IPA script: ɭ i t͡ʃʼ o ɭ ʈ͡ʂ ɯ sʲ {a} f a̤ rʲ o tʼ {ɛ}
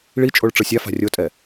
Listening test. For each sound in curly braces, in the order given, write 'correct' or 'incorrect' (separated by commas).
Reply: correct, correct